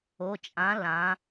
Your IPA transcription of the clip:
o˩˧˩ t͡ʃʼ ã˨˥ l ã˩˧

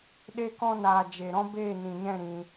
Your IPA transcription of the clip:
ɗ e˧ k ɔ̃˧ n aː˨ d͡ʒ e˨ ɾ ɔ̃˦ b eː˦˨ n ĩ˨ ɲ ɛ̃˦˨ ɾ ĩ˧

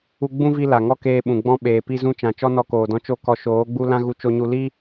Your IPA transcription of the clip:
u˦ ɡ͡b ũ˦ v i˧ l a˨ ŋ ɔ˦ k eː˧ ɓ ũ˨ ɡ͡b ɔ̃˧ ɓ eː˨ p i˧ z ũ˧ t͡ʃ ã˨ t͡ʃ ɔ˦ n ɔ˧ k oː˨ d ɔ̃˧ t͡ʃ o˦ k ɔ˧ ʃ oː˨˦ ɡ͡b u˦ l ã˦ ɣ u˧ t͡ʃ o˧ ɲ u˧ l i˦

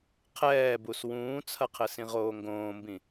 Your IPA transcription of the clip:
qʰ ɛː b u s w ũː t͡sʰ ɐ qʰ ɘ s ĩ ʁ oː ŋ ɡ õː m b ĩ

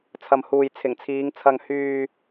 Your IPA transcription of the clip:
t͡sʰ ɐ˨ m h uː˨ j t͡sʰ ɪ˨˩ ŋ t͡sʰ iː˨˧ ŋ t͡sʰ ɐ˧ ŋ h yː˧

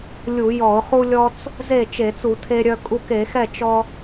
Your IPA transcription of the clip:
lʲ u˧˩˧ j ɔ˧˩˧ ʊ̯ χ u˧ lʲ ɔ˧ t͡s | z e˥˩ t͡ʃ e˧˩˧ t͡s u˧˩˧ tʰ e˧ ɾʲ œ˧ kʼ u˧ k e˧˩˧ x ɛ˥˩ t͡ʃ ɔ˧

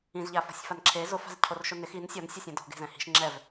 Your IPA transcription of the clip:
ĩ z ʎ a f ɔ̤ sʲ f a n ǁʰ e z ʊ f a̤ z cʰ o r ʃ ʊ n ɪ x i n sʲ ɔ n sʲ ɛ sʲ ɛ̃ d ɔ̤ ɡ e̤ z ɛ̃ h i̤ ʃ ŋ͡ǁ ɛ v

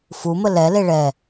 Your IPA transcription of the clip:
f u m ə l ɛ l e ɭ ɛ

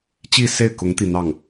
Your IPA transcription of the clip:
t͡ɕ i˥˧ s e˥˩ ɪ̯ k ʊ˧˥ ŋ t̪ i˥˧ n̪ ɑ˥˩ ŋ

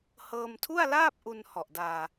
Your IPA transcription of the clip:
h ɤː˧ m tʰ u˥˩ a̯ l aː˥˩ p̚ ʔ u˧ n h ɔ˨˩ ʔ d aː˧

